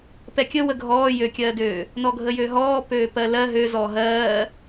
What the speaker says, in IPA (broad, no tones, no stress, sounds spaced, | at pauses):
p ɛ kʲ ə w ə ɡʱ ɔː j ø kʲ ɜː d øː | n ɔ ɡʱ ə j ø ɦ ɔː p øː p ɜ l ɜ ɦ ø z ɔː ɦ ɜː